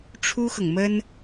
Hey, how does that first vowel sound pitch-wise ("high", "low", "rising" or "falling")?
high